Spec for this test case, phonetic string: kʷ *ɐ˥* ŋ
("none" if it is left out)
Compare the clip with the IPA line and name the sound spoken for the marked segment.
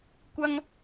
ɐ˥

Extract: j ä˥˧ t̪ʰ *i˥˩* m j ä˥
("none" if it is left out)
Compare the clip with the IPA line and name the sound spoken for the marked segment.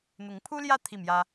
i˥˩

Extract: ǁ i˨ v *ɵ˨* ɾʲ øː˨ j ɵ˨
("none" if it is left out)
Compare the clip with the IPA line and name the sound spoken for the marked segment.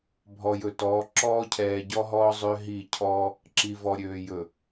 ɔ˨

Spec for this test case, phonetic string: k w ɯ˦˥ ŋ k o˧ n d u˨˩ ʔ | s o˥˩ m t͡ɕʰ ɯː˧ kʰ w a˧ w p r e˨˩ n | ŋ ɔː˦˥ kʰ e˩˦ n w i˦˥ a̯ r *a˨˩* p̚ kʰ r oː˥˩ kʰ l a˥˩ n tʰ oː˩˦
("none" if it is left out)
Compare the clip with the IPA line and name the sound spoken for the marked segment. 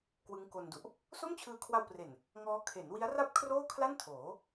a˥˩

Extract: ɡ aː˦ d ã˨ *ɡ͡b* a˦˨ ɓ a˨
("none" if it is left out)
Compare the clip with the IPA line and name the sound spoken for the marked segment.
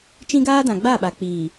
ɡ͡b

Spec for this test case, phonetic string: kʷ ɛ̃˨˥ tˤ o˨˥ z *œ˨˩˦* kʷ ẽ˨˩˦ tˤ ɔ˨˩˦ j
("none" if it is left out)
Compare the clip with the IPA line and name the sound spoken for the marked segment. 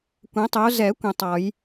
ɛ˨˩˦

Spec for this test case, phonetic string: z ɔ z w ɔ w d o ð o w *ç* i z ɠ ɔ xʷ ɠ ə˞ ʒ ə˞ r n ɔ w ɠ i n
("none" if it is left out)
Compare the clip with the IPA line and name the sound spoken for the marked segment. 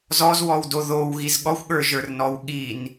ɣ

